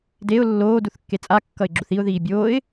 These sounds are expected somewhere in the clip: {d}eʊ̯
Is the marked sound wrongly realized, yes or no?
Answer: no